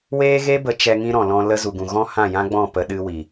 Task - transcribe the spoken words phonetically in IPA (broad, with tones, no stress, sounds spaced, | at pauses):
w eː˦ ɣ e˦ b ə˨˦ t͡ʃ ɛ˧ ŋ ĩ˦ ɾ ɔ̃˨ l ɔ̃˧ l ə˦ z u˨ ɡ ũ˨ ɣ ɔ̃˦ h ã˦˨ j ã˦ ɡ͡b ɔ̃˦˨ p ə˧ ɗ ɨ˦ w i˨